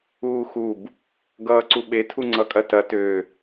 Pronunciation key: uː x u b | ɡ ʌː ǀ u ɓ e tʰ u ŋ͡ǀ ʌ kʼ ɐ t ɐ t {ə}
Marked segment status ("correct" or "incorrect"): incorrect